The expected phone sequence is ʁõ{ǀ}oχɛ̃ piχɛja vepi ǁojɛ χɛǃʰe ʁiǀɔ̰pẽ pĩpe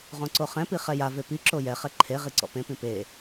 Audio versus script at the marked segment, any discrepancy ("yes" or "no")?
no